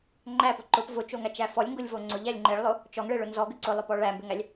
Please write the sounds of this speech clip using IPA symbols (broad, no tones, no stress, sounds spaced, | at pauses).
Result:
ŋ͡ǃ æ p ʊ ǃ ʊ p v ʊ t͡ʃ o ŋ æ t͡ʃ æ f ɔ lʲ ŋ ɡ ʊ lʲ v o ŋ͡ǀ ʊ ʎ æ lʲ ŋ͡ǃ e ɭ lˠ ʊ | t͡ʃ ɔ ŋ ɭ e ɭ ʊ n z ɔ ɡ ʏ ǀ ʊ lˠ ʊ p ɔ ɭ æ m b ʏ ŋ æ lʲ